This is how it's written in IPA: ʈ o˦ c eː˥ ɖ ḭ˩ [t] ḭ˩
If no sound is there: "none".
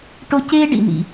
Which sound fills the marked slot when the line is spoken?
n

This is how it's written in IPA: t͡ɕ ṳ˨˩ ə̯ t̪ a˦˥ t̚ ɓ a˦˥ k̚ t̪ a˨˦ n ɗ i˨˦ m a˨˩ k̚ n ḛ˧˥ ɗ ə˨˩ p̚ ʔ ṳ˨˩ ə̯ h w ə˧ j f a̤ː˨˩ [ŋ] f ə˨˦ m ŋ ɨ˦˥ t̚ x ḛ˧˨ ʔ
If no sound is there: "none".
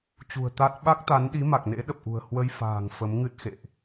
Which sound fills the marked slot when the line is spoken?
ŋ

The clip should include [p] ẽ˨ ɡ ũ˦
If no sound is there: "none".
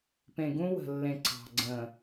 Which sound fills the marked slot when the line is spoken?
p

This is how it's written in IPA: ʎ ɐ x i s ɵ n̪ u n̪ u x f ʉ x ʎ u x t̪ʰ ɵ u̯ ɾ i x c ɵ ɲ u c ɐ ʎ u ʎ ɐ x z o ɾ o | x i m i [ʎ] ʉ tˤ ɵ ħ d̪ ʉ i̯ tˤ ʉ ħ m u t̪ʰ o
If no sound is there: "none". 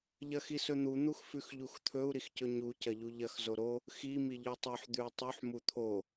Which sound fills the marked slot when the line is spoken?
ʎ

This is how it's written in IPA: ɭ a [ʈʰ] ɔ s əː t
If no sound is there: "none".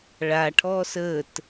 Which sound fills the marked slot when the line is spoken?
ʈʰ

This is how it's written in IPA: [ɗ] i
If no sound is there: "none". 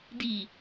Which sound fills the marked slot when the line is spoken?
d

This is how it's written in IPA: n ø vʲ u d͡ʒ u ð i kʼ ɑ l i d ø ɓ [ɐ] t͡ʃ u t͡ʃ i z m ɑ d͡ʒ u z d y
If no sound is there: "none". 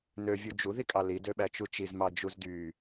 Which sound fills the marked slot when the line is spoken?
æ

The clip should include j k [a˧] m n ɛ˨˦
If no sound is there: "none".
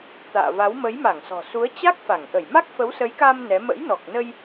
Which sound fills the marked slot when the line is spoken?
a˧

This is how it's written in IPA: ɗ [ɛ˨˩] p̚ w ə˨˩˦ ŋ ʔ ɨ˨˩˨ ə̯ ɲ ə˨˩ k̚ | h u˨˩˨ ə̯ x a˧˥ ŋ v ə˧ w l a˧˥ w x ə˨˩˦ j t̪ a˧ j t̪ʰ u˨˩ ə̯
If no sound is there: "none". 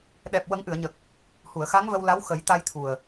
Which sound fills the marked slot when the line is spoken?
ɛ˨˩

